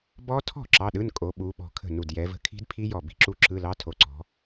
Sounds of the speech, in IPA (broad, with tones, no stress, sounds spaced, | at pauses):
b ɔ˦˥ tʰ ɔ̤˥˩ ǁ ɑ˧˥˧ ɗ ɯ˧˥˧ n kʼ o˨˦ ɓ u˨˦ ɓ ɔ̤˧˩ kʰ ə̤˥˩ n u˧˩ d j ɛ˨˦ v ə̤˦˥ kʰ i̤˦˥ d pʰ i˦˥ j ɔ˧˩ b i̤˥˩ ǁ u˦˥ ǁ ɯ˧˥˧ l ɑ˧˥˧ tʰ o˧˩ ǀ ɔ̤˨˦